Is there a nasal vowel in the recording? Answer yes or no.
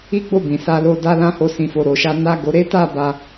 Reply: yes